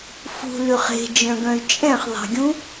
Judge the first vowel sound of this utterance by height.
high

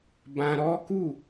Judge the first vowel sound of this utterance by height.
low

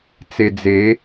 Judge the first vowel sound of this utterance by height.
mid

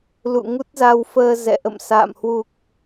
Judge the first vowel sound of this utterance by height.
high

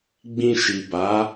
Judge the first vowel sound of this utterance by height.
high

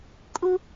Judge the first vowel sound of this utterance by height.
high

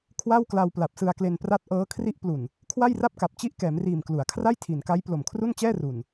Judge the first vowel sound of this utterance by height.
low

